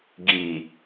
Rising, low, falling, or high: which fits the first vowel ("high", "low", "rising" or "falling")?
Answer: low